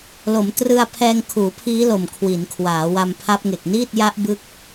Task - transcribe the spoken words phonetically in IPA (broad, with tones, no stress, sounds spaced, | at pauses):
l o˩˦ m t r ɯ˧ a̯ pʰ ɛː˧ ŋ kʰ uː˩˦ pʰ iː˦˥ l o˨˩ m kʰ w i˩˦ n kʰ w aː˩˦ w a˧ m pʰ a˦˥ p̚ ŋ e˨˩ k̚ n iː˥˩ t̚ j a˦˥ ʔ b ɯ˥˩ k̚